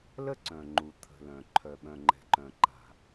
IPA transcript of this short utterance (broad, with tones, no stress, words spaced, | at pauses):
lə˥ǀœ̃˩ŋ͡ǃu˩ t̪ʰə̤˩lœ̃˩ ǃʰœ˩ɓœ̃˩ŋ͡ǃɛ̤˩ǃœ̃˩ ǃa̤˩